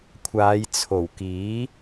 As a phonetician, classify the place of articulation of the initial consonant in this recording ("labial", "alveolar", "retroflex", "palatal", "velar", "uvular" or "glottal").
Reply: velar